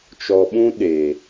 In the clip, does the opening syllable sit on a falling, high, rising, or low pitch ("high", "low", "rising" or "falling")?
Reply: low